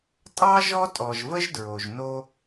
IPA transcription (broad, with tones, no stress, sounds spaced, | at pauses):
tʼ ɑ˦ ʒ ɔ˦ tʼ ɔ˨ ʒ v ə˦ ʒ d ɹ o˨ ʒ n o˦